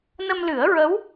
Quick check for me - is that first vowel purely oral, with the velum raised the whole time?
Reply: yes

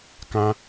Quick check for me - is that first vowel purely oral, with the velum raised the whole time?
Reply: no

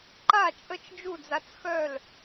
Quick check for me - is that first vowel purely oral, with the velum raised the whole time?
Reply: yes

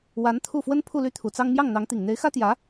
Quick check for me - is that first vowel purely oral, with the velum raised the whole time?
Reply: yes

